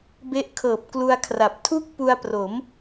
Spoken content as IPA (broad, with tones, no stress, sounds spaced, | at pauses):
b e˦˥ ʔ kʰ ɤː˨˩ p̚ k l u˧ a̯ kʰ r a˨˩ p̚ tʰ u˥˩ k̚ p u˧ a̯ p r o˩˦ m